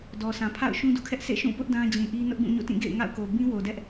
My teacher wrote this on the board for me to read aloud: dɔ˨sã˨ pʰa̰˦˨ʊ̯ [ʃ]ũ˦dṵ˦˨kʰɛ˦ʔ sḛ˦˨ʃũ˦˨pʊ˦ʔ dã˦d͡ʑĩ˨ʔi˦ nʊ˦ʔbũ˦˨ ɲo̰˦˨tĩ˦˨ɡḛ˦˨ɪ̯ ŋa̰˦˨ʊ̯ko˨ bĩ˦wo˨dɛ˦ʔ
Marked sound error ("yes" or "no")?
no